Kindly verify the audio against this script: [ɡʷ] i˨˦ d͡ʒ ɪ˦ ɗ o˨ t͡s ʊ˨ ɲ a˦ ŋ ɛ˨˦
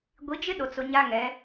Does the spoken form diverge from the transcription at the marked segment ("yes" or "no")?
no